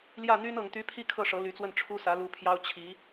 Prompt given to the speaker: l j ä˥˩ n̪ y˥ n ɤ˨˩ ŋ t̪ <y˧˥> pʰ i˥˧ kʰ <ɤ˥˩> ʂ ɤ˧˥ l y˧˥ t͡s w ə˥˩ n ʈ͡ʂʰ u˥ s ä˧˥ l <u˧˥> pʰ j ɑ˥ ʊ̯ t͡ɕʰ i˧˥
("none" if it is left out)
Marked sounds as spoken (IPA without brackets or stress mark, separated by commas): y˧˥, ɤ˥˩, u˧˥